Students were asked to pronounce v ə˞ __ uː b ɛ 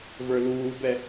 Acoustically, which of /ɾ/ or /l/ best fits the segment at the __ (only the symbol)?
l